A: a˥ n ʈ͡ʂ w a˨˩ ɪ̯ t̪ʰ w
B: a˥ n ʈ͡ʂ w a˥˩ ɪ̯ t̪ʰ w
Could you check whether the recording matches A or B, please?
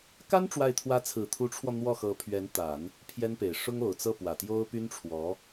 B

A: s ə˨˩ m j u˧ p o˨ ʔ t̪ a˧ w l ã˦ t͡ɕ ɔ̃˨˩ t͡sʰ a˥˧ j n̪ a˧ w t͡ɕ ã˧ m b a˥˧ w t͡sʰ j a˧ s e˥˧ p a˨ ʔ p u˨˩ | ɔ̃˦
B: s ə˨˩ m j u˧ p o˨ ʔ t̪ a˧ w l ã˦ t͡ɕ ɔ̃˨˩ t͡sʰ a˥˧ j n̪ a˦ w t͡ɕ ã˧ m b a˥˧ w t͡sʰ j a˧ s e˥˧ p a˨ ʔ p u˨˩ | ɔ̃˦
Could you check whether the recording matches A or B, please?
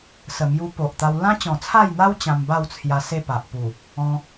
B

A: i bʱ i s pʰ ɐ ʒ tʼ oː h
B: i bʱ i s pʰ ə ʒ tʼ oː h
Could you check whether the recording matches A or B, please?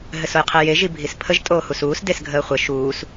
B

